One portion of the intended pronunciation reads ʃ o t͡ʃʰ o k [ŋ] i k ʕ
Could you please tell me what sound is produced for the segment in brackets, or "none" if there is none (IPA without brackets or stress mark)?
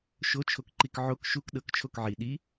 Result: ǃ